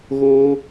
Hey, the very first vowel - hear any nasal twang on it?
no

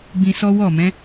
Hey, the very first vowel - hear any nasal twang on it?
yes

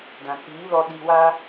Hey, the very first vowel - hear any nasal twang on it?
yes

